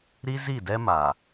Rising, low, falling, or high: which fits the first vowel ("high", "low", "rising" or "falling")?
high